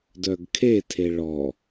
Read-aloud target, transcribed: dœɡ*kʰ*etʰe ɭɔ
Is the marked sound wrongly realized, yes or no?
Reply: no